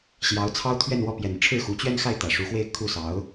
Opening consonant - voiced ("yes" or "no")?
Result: no